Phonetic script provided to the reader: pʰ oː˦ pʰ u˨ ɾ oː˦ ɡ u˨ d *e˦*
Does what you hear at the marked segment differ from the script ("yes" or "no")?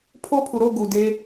no